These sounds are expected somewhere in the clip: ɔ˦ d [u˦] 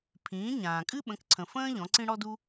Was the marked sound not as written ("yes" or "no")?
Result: no